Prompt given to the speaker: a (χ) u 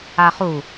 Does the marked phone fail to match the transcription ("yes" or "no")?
no